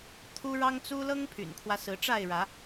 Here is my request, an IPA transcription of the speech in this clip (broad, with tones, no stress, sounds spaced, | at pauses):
t̪ʰ u˦ ɻ ɑ˦ ŋ t͡s u˦ l ɤ˦ ŋ pʰ y̰˨˩ n kʰ w ä˦ s ɹ̩˨˦ ʈ͡ʂ a˥˨ ɪ̯ ɻ ä˨˦